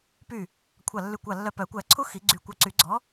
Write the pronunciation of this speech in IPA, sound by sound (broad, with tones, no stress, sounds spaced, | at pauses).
p y˧˩ | kʷʰ ɑ˧˩ lː ʉ˧˩ kʷ ɑ˧˩ lː œ˧˩ p œ˨˩˦ kʷ æ˧˩ ǀʰ u˥ x i˨˩˦ ɡ͡ǀ y˧˩ kʷ œ˧˩ ǀ y˨˩˦ ɡ͡ǀ ɔ˨˥